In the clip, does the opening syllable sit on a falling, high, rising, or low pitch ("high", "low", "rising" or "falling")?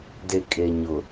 low